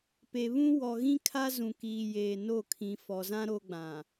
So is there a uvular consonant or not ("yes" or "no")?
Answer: no